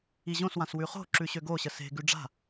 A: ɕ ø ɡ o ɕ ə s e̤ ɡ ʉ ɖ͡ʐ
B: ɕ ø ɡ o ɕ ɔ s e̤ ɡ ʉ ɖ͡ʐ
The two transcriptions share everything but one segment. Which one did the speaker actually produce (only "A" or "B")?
A